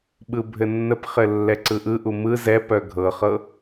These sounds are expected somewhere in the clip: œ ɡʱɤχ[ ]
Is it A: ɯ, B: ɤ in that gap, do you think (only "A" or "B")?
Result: B